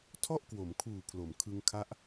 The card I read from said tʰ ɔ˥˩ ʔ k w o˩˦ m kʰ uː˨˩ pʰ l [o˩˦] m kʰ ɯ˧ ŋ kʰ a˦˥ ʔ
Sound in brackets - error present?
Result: no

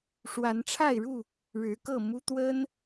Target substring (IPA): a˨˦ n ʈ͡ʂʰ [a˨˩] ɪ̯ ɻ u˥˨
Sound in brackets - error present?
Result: yes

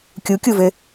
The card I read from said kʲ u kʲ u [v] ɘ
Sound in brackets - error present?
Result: no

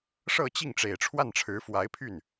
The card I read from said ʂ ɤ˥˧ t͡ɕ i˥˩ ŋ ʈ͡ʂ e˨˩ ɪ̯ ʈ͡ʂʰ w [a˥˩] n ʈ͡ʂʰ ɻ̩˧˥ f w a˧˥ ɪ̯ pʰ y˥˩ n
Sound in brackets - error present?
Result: no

